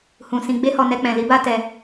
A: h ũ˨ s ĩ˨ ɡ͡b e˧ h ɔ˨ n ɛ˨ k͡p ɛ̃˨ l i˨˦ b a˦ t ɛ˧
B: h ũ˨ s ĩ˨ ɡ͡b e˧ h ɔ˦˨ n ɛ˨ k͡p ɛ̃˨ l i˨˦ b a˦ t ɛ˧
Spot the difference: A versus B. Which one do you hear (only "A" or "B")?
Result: A